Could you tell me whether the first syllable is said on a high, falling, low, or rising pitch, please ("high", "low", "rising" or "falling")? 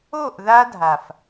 falling